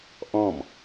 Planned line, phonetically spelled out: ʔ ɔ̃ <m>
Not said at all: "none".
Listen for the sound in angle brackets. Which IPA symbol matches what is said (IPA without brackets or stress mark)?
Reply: m